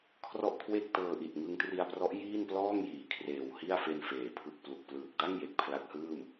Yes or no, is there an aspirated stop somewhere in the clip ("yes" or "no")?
yes